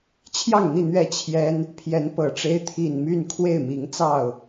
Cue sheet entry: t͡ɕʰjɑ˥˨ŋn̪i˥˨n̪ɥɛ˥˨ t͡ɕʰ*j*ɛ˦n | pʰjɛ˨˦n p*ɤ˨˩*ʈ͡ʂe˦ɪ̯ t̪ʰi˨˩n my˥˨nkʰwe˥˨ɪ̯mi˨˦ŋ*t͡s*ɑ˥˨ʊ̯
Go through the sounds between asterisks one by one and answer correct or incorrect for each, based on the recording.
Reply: correct, correct, correct

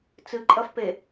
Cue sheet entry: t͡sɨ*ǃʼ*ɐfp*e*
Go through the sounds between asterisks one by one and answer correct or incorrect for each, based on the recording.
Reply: correct, correct

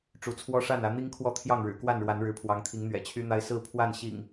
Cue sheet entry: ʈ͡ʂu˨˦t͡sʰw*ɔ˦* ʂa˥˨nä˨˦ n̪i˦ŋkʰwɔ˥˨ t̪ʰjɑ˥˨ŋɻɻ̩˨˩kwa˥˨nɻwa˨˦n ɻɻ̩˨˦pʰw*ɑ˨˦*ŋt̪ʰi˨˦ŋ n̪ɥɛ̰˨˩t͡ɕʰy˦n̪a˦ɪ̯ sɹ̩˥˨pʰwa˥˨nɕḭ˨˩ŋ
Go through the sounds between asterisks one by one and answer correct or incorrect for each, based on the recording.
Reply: correct, correct

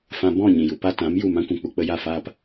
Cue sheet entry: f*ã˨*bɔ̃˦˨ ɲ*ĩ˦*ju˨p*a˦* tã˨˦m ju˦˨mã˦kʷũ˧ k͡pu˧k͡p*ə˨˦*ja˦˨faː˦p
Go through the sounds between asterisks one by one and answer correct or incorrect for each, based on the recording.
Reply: incorrect, incorrect, correct, incorrect

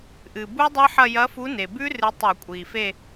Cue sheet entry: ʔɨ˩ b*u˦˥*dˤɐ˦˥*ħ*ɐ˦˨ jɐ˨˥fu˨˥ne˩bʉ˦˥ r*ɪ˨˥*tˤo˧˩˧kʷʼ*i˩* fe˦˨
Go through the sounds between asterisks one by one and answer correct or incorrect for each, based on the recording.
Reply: correct, correct, incorrect, correct

